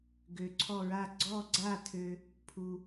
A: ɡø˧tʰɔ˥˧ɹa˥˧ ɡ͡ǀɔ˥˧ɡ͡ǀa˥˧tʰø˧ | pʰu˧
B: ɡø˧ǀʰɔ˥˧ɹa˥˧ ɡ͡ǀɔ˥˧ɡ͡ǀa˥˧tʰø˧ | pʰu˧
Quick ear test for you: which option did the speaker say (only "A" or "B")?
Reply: B